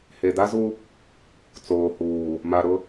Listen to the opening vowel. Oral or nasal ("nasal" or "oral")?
oral